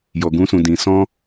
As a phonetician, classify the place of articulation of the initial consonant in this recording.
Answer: palatal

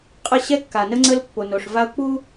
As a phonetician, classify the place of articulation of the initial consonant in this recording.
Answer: uvular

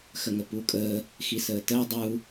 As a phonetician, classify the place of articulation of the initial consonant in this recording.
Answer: velar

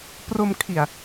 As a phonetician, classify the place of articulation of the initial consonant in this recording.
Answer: labial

